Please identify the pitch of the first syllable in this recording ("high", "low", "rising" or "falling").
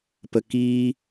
low